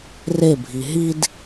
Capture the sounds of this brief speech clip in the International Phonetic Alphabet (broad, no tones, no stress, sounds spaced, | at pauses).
r e bʱ i ɦ i d